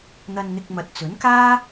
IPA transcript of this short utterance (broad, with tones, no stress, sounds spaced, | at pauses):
n̪ ɐ˧ n n̪ ɪ˧ k̚ m ɐ˨ t̚ t͡s ɵ˨˥ n k aː˥